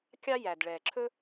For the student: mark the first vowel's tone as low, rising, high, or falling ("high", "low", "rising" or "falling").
high